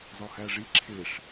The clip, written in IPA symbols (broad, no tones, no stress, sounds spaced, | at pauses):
z ɒ h æ ʐ i ǁʰ e ʂ